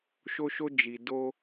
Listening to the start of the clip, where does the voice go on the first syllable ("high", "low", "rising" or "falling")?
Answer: high